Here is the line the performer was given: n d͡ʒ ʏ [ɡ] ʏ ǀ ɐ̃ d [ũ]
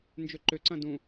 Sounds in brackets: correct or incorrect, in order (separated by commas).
incorrect, correct